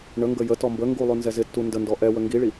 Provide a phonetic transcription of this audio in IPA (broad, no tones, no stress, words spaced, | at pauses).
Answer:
ɳəŋɡə jətɔ mbə ŋɡulˠʉ nzɛzɪtːu ndəndɔ ʔɛwə ŋɡiɭi